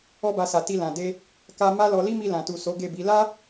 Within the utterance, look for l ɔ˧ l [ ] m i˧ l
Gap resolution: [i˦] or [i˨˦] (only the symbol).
i˦